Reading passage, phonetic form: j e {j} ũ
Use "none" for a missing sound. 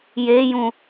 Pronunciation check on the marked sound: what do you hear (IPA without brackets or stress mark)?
j